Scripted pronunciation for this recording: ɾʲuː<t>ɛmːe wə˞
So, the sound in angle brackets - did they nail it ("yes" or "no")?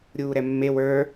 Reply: no